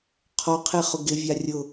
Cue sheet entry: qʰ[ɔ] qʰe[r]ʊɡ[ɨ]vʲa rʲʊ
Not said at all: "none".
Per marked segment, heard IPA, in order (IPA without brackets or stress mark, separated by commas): ɔ, χ, ɪ